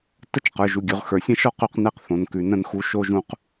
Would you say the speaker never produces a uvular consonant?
no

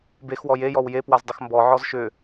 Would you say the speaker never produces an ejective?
yes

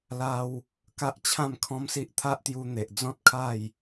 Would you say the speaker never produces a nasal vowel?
no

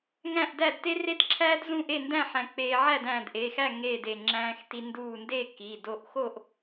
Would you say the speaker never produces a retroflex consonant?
yes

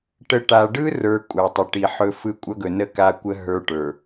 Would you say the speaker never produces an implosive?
yes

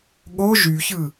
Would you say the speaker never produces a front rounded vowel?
no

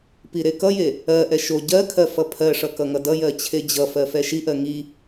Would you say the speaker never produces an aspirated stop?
no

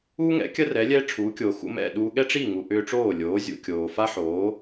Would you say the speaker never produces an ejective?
yes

